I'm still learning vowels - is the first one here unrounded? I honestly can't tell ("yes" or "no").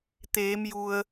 yes